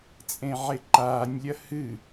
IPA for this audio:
t͡sʼẽʕeǃaːnʲlʲɐ hɨ

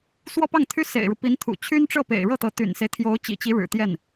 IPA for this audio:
swɔ˥pɑ˥˩ŋt̪ʰy˥ sḛ˨˩ɪ̯ɻu˦pi˧˥nt̪ʰṵ˨˩ t͡ɕʰy˥nʈ͡ʂɤ˥˩pḛ˨˩ɪ̯ ɻɤ˥˩t̪ɤ˧˥ t̪y̰˨˩nse˦ɪ̯ t̪ʰjo˧˥ʊ̯t͡ɕḭ˨˩t͡ɕi˧˥ ɻɻ̩˨˩t̪jɛ˥˩n

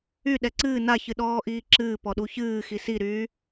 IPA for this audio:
y ɗɛǀɨː na çɨɗɔːʔiːǁɨː pɔɗuçɨːxi siɾyː

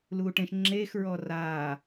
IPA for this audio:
luːʈẽʃ ŋ͡ǁeːxɹɔ raː

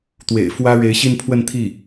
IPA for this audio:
t̪wḛ˨˩ɪ̯ fwä˥ ɻe˧˥ɪ̯ɕi˥˧npʰwə˥˧n t̪ʰi˥˩

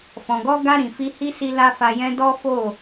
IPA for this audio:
fɔ̃˨ɡɔ˧ɡa˧ ɾĩ˨fi˧hi˦ si˦la˦fa˧jɛ̃˦ dɔ˦fo˦˨

